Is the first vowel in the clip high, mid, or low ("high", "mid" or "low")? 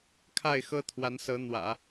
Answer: low